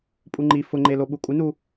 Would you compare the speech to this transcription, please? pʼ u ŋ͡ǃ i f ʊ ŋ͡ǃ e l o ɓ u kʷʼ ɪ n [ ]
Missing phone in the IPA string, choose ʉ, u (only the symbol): u